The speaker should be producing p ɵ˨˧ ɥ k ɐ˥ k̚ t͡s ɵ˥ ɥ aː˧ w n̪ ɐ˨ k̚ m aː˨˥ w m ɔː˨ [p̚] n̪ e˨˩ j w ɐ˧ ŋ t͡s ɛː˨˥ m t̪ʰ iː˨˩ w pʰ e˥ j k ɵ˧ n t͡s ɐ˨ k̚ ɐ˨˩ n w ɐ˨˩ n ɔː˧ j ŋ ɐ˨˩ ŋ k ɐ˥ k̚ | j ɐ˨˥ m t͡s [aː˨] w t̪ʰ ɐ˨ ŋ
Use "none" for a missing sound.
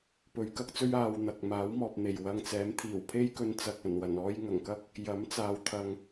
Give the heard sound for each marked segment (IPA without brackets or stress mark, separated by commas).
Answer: p̚, aː˨